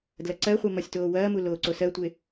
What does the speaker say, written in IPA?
d l ɐ ǀ ɜ χʷ ɜ m ɒ sʲ t oː w ɐː m u l oː ǀ o s ɜ tʷ e

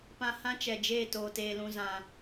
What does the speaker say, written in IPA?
p ã˧ h ã˦ t͡ʃ ɛ˨ d͡ʒ eː˦˨ t oː˨ t eː˨ l ũ˨ z ã˨

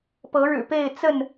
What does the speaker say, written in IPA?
p ɤ˨˦ ɻ ɻ̩˨˩ p e˥˨ ɪ̯ t͡s ə˥˨ n

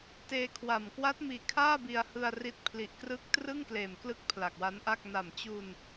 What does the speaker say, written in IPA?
t eː˧ kʰ w a˨˩ m k w a˦˥ t̚ m iː˨˩ kʰ aː˥˩ b i˧ a̯ h ɯ˧ a̯ r i˦˥ t̚ pʰ l i˨˩ ʔ k r ɯ˦˥ k̚ t r ɯ˥˩ ŋ k l eː˨˩ m k l ɯ˦˥ k̚ pʰ l a˨˩ k̚ w a˦˥ n ʔ a˥˩ k̚ n a˨˩ m t͡ɕ u˧ n

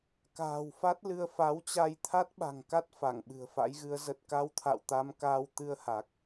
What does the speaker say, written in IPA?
k a̤ː˨˩ w f a˦˥ t̚ l ɨ˧ ə̯ f a˨˦ w t͡ɕ a˧ j t̪ʰ a˦˥ t̚ ɓ a̤˨˩ ŋ k a˦˥ t̚ f a˧˩ ŋ ɓ ɨ̤˨˩ ə̯ f a̰˧˥ j ɣ ɨ˨˦ ə̯ z ə˨˩ t̚ k a˧ w t̪ʰ a̰˧˨ w t̪ a˧ m k aː˧ w t̪ ɨ˧ ə̯ h a˨˩ k̚

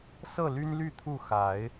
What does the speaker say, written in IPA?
s ɤ˥˨ l y˦ n l y˥˨ t̪ʰ u˥˨ x a˨˦ ɪ̯

